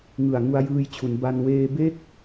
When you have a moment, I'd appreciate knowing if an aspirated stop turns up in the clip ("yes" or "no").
yes